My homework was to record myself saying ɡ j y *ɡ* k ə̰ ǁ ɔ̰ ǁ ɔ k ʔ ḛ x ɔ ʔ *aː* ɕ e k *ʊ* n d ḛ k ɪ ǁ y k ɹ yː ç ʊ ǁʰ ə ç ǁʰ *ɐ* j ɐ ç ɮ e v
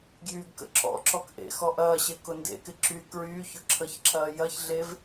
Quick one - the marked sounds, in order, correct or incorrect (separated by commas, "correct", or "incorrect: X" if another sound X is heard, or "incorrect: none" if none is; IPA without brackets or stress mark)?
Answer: correct, incorrect: ɐː, correct, incorrect: ɐː